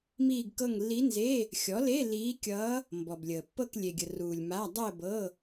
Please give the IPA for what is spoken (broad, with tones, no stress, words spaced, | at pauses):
miː˥˧ɡkɤ˥˧ŋ lːi˧˥nze˧˥˧ | xʲɔ˩˥le˧˥˧ liː˧˥kʲʌː˧˥ | mbɔ˨blʲəː˨pːɤ˥˧k lʲe˨ɡʲə˨ruː˨lʲ ma˧˥˧ dˤəː˥˧bɤ˧˥˧